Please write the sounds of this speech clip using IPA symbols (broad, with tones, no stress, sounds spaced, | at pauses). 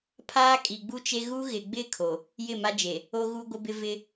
pʰ aː˦ kʼ i˨ ɡ͡b u˦ t͡ʃ e˦ ɣ u˦ ɣ ɪ˨ ɡ͡b ɪ˦˨ kʰ o˨ | j ɪ˦˨ m a˦ d͡ʒ e˨ | o˦ ɣ u˦ ɡʷ ɪ˦ b ɪ˦ v ɪ˦